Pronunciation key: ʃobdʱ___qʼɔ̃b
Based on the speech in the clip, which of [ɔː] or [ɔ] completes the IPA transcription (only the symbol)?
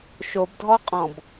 ɔ